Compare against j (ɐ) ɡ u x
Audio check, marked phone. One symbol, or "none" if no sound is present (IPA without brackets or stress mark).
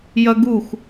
ɐ